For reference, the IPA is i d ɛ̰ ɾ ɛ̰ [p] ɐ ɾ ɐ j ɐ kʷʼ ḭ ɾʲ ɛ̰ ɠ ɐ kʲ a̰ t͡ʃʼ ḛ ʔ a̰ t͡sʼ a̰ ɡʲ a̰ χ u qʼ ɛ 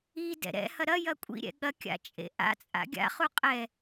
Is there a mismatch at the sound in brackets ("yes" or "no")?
yes